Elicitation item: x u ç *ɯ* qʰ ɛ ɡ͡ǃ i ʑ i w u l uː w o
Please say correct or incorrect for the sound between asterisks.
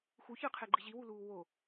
correct